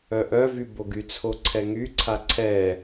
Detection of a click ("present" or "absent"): present